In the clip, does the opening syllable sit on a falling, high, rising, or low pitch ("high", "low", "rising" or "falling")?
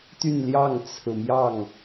falling